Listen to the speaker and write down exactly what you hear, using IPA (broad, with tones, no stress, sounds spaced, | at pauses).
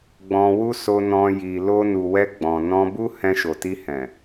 ɡ͡b ɔ̃˧ w u˦ s o˧ n ɔ̃˧ j i˨ l o˧ n u˨ w ɛ˧ ɡ͡b ɔ̃˨ n ɔ̃˧ b u˦ h ɛ̃˧ ʃ o˨ t i˧ h ɛ̃˨